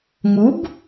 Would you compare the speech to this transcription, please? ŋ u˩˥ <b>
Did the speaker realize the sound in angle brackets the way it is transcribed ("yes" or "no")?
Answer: yes